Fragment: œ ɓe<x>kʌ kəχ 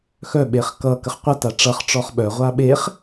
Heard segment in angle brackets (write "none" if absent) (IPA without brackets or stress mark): χ